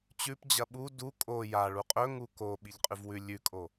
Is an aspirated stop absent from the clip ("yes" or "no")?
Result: yes